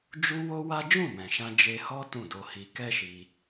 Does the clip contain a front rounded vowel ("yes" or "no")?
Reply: no